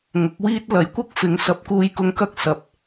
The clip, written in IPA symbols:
ŋʊ˨˥k̚wiː˥t̚ lɐ˨˧jkʷɐ˥k̚fɪ˨˧ŋ sɐ˨˥p̚kuː˨˧jkʊ˨˧ŋkɐ˧k̚ sɐ˨p̚

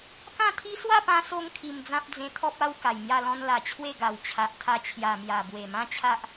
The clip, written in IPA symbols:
kã˥˧t̪ʰi˦ swa˥˧pã˧ so˧ŋ kʰi˧md͡zã˦p̚ d͡zẽ˧t̪ʰɔ˦p̚ a˦w ka˨˩jmja˥˧lɔ̃˦n la˨˩t͡ɕʰwe˥˧ɡa˨˩w t͡ɕʰa˨ʔt̪ʰa˧ t͡ɕʰja˨˩mja˨˩ bwe˨˩mã˦t͡ɕʰa˦ʔ

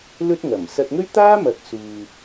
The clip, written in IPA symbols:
lɵ˥t̚ŋɐ˨˩m sɐ˧t̚ŋɵ˥ɥt̪aː˥mɐ˨˥k̚ suː˧

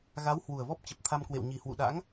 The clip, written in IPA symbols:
ɣa˨˦w hwu˨˩ə̯vɔ˦˥p̚ t͡ɕə˨˩p̚t̪ʰa˧mkwḛ˧˨w ɲi˨˩hwṵ˧˨ɗa̰˧˥ŋ

